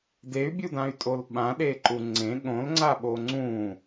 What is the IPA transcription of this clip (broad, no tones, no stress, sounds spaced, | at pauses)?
d e y̯ bʲ u d ã y̯ tʼ o l ɓ ã ɗ e ǃ u ŋ͡ǀ ẽ ɠ õ l ŋ͡ǀ a ɓ o ŋ͡ǀ ũ